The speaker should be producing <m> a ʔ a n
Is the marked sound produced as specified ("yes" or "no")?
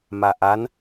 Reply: yes